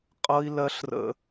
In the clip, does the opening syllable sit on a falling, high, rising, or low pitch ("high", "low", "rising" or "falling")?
high